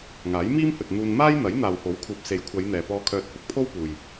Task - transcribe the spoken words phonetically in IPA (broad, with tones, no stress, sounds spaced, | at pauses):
ŋ aː˨˥ j m iː˥ m h ɵ˨ t̚ n̪ uː˧ n m aː˥ j n̪ ɐ˨˥ j n̪ aː˨ w h o˨˥ w kʰ uː˨ p̚ s e˨˥ j kʷʰ ɐ˨˧ j n̪ ɛː˨ p ɔː˧ kʰ œː˧ t̚ h ʊ˥ k̚ pʰ o˥ w p uː˨ j